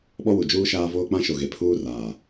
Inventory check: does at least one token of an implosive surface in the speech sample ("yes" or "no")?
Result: yes